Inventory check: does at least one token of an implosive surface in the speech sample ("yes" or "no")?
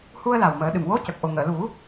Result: yes